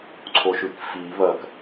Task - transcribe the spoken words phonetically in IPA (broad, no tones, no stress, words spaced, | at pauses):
ǀʰoʃʉkfi βɐk